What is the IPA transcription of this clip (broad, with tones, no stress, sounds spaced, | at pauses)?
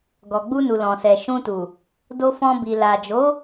ɡ ɔ˨ ɡ͡b u˧ n u˨ l ɔ̃˨ s ɛ˨ ʃ ũ˧ t u˨ | d o˧ f ɔ̃˧ b i˨ l a˨ d͡ʒ o˨˦